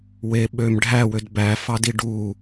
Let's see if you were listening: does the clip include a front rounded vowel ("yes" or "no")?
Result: yes